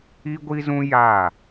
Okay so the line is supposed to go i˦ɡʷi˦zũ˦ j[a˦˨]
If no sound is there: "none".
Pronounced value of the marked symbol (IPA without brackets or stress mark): a˦˨